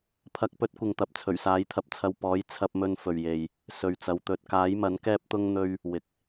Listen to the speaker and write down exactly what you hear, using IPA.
pʰ ɐ˨˥ k̚ p ɵ˨˥ t̚ kʷ ɪ˨ ŋ t̪ ɐ˨ p̚ t͡sʰ ɵ˨˩ ɥ s aː˨˥ j t̪ʰ ɐ˧ p̚ t͡sʰ ɐ˧ w p ɔː˨˥ j t͡sʰ ɐ˧ p̚ m ɵ˧ n f ɵ˨ ɥ j e˧ j | s ɵ˨ ɥ t͡s ɐ˨˧ w t̪ ɵ˨ t̚ k aː˨˥ j m ɐ˨˥ n k ɛː˥ p̚ t̪ ʊ˥ ŋ n̪ ɵ˥ ɥ | w ɪ˨ k̚

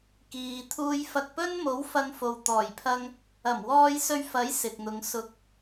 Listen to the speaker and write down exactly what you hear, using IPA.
k iː˨ t̪ʰ uː˧ j f ɐ˧ k̚ p ɵ˥ n m o˨˥ w f ɐ˧ ŋ f o˨ w t̪ ɔː˨˩ j pʰ ɐ˧ ŋ | ɐ˨˩ m w ɔː˧ j s ɵ˧ ɥ f ɐ˨˥ j s ɪ˨ k̚ n̪ ʊ˨˧ ŋ s ʊ˨ k̚

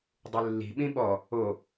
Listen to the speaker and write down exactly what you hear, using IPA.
dˤ ɨ lː i̤ ɓ ĩ ɓ ɔ | o

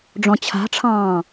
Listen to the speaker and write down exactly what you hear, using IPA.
ɖ͡ʐ ɔ̃ t͡ɕʰ a̤ ʈ͡ʂʰ ɑ̃ː

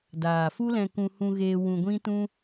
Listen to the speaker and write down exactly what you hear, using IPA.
d aː˨ f u˦ l ɛ̃˧ k ũ˧ h ũ˧ ɣ eː˧ w ũ˧ ɡʷ ĩ˦ t ũ˦

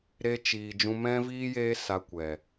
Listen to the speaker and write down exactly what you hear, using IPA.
ɾ e˧ t͡ʃ iː˨ d͡ʒ ũ˧ m ɛ̃˦ v iː˦ j eː˦ s a˧ kʷ ɛ˨

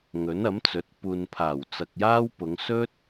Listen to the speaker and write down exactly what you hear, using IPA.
ŋ ɵ˨˥ n ɐ˨˥ m t͡s ɵ˨˥ t̚ p uː˨ n pʰ aː˨˩ w t͡s ɐ˨ k̚ j aː˥ w p ʊ˨˧ ŋ s ɵ˥ t̚

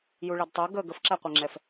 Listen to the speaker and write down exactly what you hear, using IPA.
j u ɭ ɛ d tˤ ɛ ɡ ə ɡ ə f ǁ æ qʷ ɛ ŋ͡ǁ ɛ f

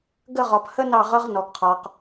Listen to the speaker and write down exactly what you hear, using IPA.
ɡ ə˥˧ ʁ ɒ˧ p h ə˥ n ɑ˥˧ ʁ ʌ˥ ʁ n ɔ˧ ɡ qʰ ɒ˧ q

